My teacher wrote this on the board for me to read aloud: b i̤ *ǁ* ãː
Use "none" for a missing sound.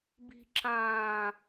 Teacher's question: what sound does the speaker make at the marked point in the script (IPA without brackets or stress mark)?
ǁ